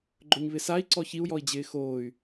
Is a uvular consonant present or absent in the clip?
absent